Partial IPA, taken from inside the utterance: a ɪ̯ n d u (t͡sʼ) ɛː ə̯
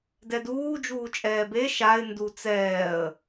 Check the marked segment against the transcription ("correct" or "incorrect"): incorrect